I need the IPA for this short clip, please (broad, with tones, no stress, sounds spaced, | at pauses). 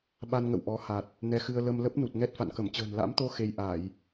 ɓ a˧ n ŋ ə̰˧˨ w ʔ ɔ˨˦ h a˨˩ t̚ | n ɛ˧ x ɨ˧ ə̯ l ə˧ m l ə˦˥ p̚ n u˨˩ t̚ ŋ ɛ˦˥ t̚ f a̰˧˨ n k ə˧˩ m t͡ɕ ə̤ː˨˩ n l a̰˧˥ m t̪ o˧ x e˧ j ʔ a˧˩˨ j